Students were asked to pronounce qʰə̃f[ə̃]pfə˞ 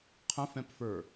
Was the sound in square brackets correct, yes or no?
no